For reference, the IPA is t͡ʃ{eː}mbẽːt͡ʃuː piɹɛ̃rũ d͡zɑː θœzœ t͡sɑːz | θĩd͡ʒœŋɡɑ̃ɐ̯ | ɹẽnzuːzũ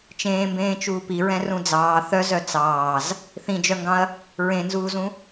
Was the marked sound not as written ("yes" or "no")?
yes